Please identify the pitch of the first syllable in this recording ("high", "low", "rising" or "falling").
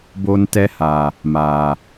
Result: high